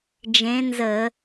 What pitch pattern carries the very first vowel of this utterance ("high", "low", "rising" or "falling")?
rising